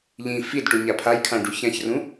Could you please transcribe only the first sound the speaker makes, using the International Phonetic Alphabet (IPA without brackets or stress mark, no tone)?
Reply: ʎ